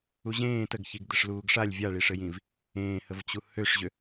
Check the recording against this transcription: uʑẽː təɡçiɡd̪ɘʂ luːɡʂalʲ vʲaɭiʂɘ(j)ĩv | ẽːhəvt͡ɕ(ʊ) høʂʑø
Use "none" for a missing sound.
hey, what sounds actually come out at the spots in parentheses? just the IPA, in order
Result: j, u

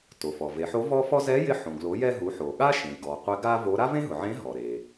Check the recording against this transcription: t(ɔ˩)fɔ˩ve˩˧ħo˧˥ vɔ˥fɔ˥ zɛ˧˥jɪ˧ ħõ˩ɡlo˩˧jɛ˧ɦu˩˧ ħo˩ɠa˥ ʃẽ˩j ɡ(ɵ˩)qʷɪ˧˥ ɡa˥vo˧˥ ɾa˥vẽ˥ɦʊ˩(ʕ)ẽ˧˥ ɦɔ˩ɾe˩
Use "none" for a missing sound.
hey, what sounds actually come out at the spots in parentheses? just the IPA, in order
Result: o˩, ɔ˩, ʕ

